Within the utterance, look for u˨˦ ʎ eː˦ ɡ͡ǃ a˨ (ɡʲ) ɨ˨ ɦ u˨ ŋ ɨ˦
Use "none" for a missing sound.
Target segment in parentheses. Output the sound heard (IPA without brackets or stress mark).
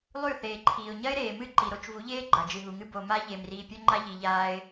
d͡ʒ